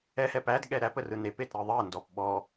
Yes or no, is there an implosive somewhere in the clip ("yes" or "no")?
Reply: yes